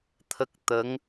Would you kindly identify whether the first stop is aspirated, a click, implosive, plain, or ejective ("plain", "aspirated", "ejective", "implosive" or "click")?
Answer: aspirated